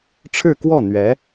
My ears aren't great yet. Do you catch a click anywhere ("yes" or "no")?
no